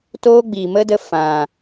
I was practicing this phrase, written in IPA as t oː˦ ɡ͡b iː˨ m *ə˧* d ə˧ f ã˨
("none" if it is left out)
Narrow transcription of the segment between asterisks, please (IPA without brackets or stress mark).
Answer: ə˦